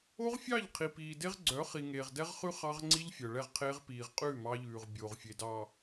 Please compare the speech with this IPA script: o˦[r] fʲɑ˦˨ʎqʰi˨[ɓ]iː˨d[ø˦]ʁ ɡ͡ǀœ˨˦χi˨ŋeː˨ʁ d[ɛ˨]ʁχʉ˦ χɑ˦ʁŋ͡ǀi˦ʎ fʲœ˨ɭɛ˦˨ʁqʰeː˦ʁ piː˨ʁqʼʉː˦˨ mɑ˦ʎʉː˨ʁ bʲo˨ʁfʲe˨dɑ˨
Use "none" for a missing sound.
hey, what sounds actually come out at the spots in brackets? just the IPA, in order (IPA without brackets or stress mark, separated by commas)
ʁ, p, e˦, ɛ˦